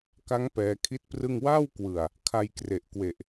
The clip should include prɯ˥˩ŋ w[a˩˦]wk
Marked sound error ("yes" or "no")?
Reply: yes